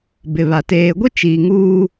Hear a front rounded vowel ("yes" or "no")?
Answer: no